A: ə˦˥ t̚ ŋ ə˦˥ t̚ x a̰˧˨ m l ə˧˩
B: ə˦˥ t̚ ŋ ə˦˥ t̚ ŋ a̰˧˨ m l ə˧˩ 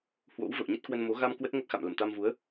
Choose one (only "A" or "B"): A